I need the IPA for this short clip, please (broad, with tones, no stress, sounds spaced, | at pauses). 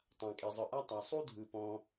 tˤ ã˩ kʼ e˩ zˤ ɯ˩ ʔ a˥ tˤ a˩ sˤ u˥ dʱ ɯ˩ p ɔ̃˩